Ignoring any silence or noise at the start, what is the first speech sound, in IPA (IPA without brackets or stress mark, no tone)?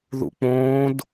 ð